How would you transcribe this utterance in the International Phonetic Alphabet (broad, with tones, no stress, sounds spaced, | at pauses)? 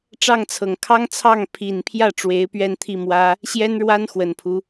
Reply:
ʈ͡ʂ ɑ˥˩ ŋ t͡sʰ ɤ˨˩ ŋ kʰ ɑ˥ ŋ t͡sʰ ɑ˥˩ ŋ pʰ i˨˩ n pʰ j ä˥˩ ʈ͡ʂ w e˧˥ ɪ̯ p ɥ ɛ˥˧ n t̪ʰ i˥˩ m w ä˥ | ɕ j ɛ˥ n ɻ w a˥ n x w ə˨˩ n pʰ u˦